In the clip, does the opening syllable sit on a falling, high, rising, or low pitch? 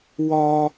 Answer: high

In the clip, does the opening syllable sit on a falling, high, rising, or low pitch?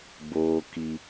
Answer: high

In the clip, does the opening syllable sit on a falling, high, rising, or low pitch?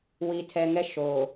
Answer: low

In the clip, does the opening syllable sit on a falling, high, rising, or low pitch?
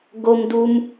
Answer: high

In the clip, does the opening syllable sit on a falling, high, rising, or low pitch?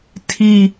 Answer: low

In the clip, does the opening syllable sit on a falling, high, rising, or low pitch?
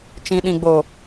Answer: low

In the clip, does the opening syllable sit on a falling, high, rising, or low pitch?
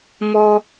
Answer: high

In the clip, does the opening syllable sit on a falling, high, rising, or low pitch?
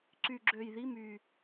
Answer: low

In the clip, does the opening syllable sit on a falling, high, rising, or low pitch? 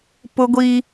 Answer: high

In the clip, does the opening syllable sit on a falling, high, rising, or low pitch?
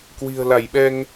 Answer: low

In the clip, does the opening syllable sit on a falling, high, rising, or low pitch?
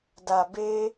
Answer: low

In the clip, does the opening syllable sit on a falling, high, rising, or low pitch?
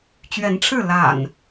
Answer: rising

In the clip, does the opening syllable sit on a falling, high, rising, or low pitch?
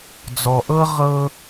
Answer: low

